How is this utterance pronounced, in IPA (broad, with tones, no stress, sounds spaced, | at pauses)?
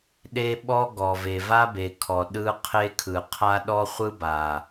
ɗ e˦ ɓ ɔ˦ ɡ ɔ˨ v e˨ v a˦ b e˨ kʰ ɔ˨ ɗ ɯ˦ qʰ e˦ kʰ ɯ˨ qʰ a˦ ɗ ɔ˦ χʷ ɯ˦ b a˨